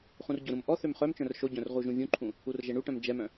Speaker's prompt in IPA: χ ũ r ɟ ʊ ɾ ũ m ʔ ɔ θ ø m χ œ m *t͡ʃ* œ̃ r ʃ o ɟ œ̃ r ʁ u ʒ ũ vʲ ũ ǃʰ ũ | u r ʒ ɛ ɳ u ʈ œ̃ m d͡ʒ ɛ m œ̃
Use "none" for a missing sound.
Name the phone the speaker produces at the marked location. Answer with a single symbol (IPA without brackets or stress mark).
t͡ʃ